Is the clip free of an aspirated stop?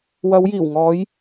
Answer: yes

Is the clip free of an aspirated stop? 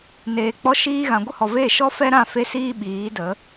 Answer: yes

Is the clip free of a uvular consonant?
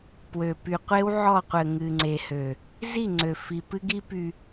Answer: no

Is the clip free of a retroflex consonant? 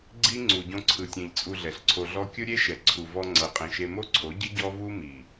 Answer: yes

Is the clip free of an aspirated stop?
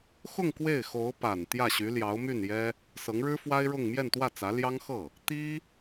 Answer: yes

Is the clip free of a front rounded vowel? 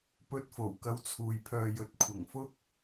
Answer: no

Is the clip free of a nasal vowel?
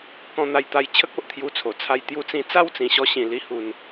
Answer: no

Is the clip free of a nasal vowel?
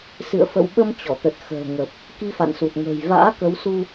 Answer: yes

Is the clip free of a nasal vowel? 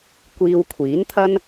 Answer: yes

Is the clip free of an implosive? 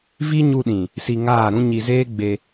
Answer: no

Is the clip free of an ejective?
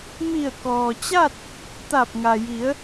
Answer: yes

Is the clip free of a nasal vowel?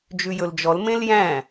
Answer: no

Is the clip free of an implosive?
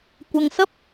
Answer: yes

